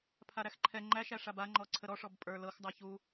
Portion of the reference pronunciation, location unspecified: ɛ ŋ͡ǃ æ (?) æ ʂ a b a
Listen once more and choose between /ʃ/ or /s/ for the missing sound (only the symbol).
ʃ